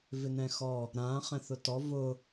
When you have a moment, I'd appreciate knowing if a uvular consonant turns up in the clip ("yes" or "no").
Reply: yes